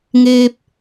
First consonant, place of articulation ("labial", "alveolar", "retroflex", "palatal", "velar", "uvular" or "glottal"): velar